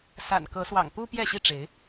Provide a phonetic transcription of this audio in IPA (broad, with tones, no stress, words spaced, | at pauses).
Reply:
sa̰˨˩nkɤ˨˦swɑ̰˨˩ŋpu˦ pjɛ˥˨ɕi˥˨ʈ͡ʂe˨˦ɪ̯